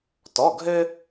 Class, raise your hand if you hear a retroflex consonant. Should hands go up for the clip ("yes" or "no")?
no